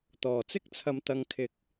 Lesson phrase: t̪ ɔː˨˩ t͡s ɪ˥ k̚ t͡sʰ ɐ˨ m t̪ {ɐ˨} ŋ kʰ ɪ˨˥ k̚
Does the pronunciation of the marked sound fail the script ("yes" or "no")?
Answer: no